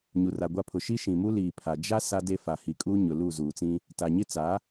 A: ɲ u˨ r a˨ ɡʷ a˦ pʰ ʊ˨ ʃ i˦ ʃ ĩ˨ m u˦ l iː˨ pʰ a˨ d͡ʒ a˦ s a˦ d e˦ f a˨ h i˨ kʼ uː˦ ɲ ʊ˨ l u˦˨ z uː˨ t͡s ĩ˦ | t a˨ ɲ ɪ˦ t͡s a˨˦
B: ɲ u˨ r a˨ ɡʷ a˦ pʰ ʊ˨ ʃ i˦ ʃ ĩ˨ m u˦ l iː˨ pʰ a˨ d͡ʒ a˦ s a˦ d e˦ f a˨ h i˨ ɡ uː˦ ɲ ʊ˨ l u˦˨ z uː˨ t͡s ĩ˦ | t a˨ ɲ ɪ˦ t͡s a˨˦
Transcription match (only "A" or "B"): A